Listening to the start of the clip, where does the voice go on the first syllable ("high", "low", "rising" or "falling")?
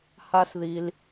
high